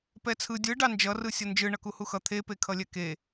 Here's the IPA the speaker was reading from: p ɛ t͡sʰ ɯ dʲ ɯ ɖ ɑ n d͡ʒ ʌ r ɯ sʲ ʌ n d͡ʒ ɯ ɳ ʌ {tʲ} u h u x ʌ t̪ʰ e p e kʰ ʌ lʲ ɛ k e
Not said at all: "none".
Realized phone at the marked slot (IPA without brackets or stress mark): k